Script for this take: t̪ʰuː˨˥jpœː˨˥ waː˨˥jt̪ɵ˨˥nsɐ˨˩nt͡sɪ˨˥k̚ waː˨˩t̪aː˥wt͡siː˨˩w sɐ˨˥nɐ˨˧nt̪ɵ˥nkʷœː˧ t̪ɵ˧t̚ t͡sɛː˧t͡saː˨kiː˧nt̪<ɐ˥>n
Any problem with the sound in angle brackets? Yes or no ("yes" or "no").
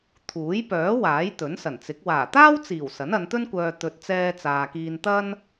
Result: no